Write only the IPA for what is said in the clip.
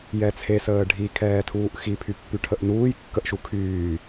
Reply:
jɛt͡sʰesəː ɖʱikʰɛːtʰuːʔ xipʰypːy ʈʰəʔnuːj kːəʔʃukʰyː

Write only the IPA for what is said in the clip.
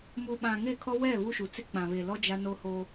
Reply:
mu˨ɓã˨ŋe˦˨kʰɔ˦ wɛ˦˨ βu˦ʃu˨t͡se˦ k͡pã˨βe˨ lɔ˦ d͡ʒa˦no˦ho˦

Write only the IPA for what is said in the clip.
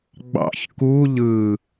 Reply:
ɡ͡bɑ̰ç ku ʎɯ

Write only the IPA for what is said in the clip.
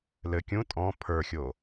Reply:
lɘ kʲũ tʼɔ̃ pʰə˞xʲo

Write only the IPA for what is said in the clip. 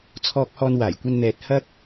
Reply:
t͡sʰɔː˧k̚hɔː˧n waː˨˩jkʷɐ˧nn̪ɛː˨t̚ hɐ˥k̚

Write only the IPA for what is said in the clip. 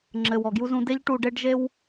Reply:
ŋ͡ǁɘ˨wɔ˨ɡju˧ zũ˧de˦ʎ ʈu˧ɖe˦ɖ ʒe˦w

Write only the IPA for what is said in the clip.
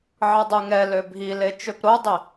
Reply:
ʕədˤyŋɛlø bʱile t͡ʃøpɾodˤi

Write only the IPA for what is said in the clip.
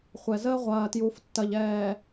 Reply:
χʷɛ˨zəː˦ ʁʷɐː˨tju˨ftːɐ˨ʎ ɛː˨

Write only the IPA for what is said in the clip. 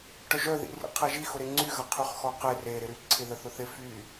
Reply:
ʈœʒœðḭ rḭqʰɛʒi xʊɾeŋ͡ǀyɣɐ qʰyχxɔqe reɾɪɾy ǀʰɪðəθʊθɪ fy

